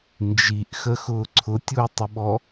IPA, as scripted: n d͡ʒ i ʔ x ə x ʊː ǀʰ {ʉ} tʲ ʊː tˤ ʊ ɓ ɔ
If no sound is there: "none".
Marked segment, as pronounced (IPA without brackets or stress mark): ʊ